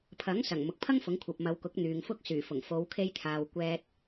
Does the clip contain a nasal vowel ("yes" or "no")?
no